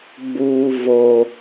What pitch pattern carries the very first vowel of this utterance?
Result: high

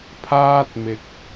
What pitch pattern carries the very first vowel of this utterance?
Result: high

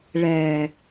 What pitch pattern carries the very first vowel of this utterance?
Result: low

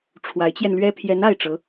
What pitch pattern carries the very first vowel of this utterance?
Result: rising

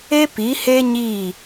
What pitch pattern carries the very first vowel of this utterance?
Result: high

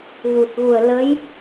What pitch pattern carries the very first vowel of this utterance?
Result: low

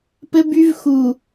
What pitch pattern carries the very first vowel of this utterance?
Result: high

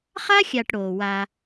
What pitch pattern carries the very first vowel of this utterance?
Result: high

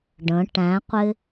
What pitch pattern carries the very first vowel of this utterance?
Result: rising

